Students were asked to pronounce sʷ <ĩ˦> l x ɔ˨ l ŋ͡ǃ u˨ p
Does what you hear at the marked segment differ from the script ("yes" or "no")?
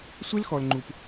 yes